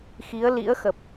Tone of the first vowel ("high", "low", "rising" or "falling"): rising